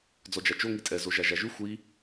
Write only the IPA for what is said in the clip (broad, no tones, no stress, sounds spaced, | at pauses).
d͡z ɔ d͡ʒ a t͡ʃ o ŋ i tʼ ɛ z o ʒ a ʒ a ʒ ʉ xʷ i